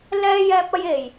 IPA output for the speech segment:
l ɛː˥ j ɛː˥ p̚ ɐ˥ j e˨˩ j

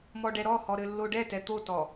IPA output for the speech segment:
m ɔ ɖ ɛ ɾ ɔ h ɔ ɾ ɘ lː o ɖ ɛ t ɛ t̪ o t ɔ

